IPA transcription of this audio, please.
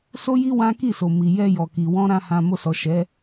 s o˦ j i˦ w ã˦ k i˦˨ s o˨ m i˨ j ɛ˧ j ɔ˨ k i˨ w ɔ̃˧ ɾ ã˧ h ã˨ m o˧ s ɔ˨ ʃ ɛ˨˦

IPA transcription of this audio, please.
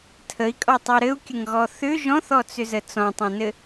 tʰ ə i̯ kʼ ɔ tˤ o ɾ ɘ u̯ kʲ ə ŋ ɣ ɔ θ ʏ ʒ ɔ̃ θ ɔ t͡s ʏ z ə t͡s ɔ̃ tˤ õ n ɘ

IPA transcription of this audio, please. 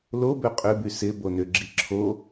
l o b ø qʼ ʏ b y s ɪ b o n ʏ ɡ͡ǁ i ǁʰ o

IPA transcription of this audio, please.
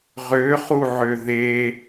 ʁ ø χ u ʕ ø ð e

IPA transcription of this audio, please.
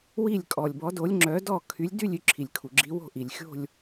w i˥˨ lʲ kʼ ɔ˩ lʲ b ɔ˨˥ d o˨˥ lʲ ŋ͡ǁ œ˨˥ d ɔ˥˨ kʰ y˨˥ lʲ d y˥˨ lʲ y˥˨ ǁʰ i˩ lʲ kʰ u˩ ɡ͡ǁ i˨˥ w o̤˥˨ ʔ i˩ lʲ xʲ o̤˥˨ lʲ

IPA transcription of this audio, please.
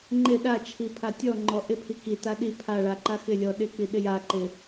ŋ͡ǃ ɪ ɗ a t͡ʃʰ i pʰ a tʲ ɔ ŋ͡ǃ ɔ ʔ ɪ pʰ i k i t a ɗ i pʰ a ɭ a ǃ a x ɪ lʲ ɔ ɗ ɪ k͡p i ɗ ɪ j a ǃ ɪ

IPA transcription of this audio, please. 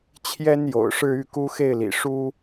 t͡ɕʰ j ɛ˥ n j o̰˨˩ ʊ̯ ʂ ɻ̩˥˧ y˥˩ k u˥ x e˥˩ ɪ̯ l ḭ˨˩ ʂ u˥

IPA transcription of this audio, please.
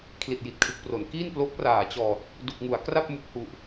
kʰ l i˨˩ t̚ j i˨˩ t̚ kʰ ɯ˨˩ k̚ p r o˩˦ n k iː˥˩ n p l o˦˥ k̚ r aː˨˩ t͡ɕ ɔː˨˩ t̚ | d u˨˩ k̚ ŋ u˩˦ a̯ k r a˥˩ p̚ m u˨˩ k̚ h u˨˩ ʔ

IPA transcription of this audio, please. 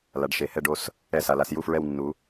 l a˩˧ ɖ ʃ e˩˧ h ɛ˦˨ ɖ o˦˨ s | ɛ˦˨ s a˩˧ l a˩˧ s j u˦˨ f ɹ ɛ˦˨ w nː u˩˧

